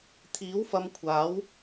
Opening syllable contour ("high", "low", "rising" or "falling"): rising